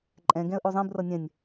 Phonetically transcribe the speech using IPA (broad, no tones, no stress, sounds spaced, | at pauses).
ǃʼ ɛ̃ ɡ ɛ̃ ə̯ ʔ o zˤ ĩ b r ʌ nʲ ɛ̃ nʲ